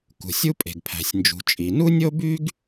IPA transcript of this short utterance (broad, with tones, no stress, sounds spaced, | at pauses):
k ṳ˩ sʲ u˥ pʼ e̤˩ ɡ pʰ æ̤˩ sʲ n d͡ʒ ṳ˩ t͡ʃʼ i˩ n u˥ nʲ o˥ b y˥ ɡ